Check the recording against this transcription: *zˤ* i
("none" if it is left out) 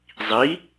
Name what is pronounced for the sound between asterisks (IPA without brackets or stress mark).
zˤ